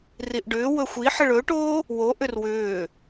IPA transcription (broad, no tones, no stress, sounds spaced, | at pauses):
r i ʔ ɖ ʏː w ɵ xʷ i ħ ə ɭ ɵː ʈ oː | w o ʔ ʏ r w ʏː